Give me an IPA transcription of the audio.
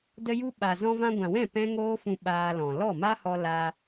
də˧ju˧ɓa˨ zɔ̃˧vã˧ɡʷã˨wɛ̃˦˨ pɛ̃˦ ŋoː˦fũ˧ ɓaː˧lɔ̃˨ lɔ˦˨ma˦hɔ˧ la˧

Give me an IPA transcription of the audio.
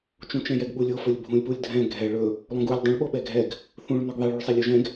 t͡ʃũt͡ʃɛ̃jɛɡɓulʲ ofɵlʲ bʱũlʲpulʲ dʱɛ̃ ɡʱɛ ɭɵ | lˠõɡulʲ dˤũɭɓoɓɛ ɡʱɛɡ | θũɭ nɵɡðˤɛɭuɭsˤɛlʲ oʒɛ̃ɡ

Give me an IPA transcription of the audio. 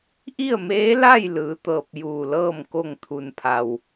ʔi˥˨ə̯meː˧˥la˥˨jlɯː˩˧ t̪ɤː˧˩p̚juː˧˩lɤː˥˨m ko˧˩ŋt̪ʰu˩npʰa˩w

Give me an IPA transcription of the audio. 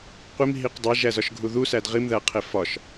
qʷimɦiq dˤeʒæzɒʃɡʱu ðusæd ʁimðæqʰe fɒʃ

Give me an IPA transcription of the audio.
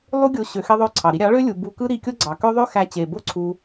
lˠu˦ɡʲo˧ ɕø˧xe˦ðˤø˦˨ǀʰɑ˨ ɾi˧ɾʲɑ˨˦ɭø˦ lʲu˧ bu˧kɯ˦ ɾi˧kʲo˦ɡ͡ǀɑ˨kø˦ ðˤø˦ xæ˧t͡ɕe˨bo˦ ǀʰu˧

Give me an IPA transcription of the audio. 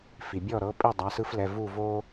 fi˩bʲɔ˦˨ɾɤ˨˦pʼi˦˨ dˤa˩˧˩sɯ˦flɛ˩˧˩ vu˦˨ vo˦

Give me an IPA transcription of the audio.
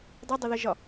dˤidˤɪðəʒɒ

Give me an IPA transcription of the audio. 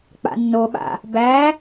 k͡pa̰nːoɓa̰ | bæ

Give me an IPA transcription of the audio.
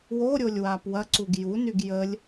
woɾʲolʲ wapwɐǀuɡ junyɡ jəlʲ

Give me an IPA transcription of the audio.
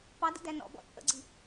pɑdə̰dæ nɔ̰bɔ̰ t͡sʼə̰ɡ͡ǀi

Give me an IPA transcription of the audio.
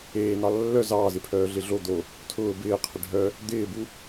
eːnɑ lːœ zɑːzɪpʰœː ɮɪɮo d̪o | tʰʊː bɪː qʰɪɖʱœ | d̪ɪːbu

